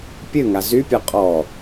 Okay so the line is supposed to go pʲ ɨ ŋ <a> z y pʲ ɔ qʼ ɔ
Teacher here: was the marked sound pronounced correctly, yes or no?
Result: yes